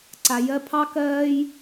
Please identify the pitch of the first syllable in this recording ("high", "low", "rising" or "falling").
low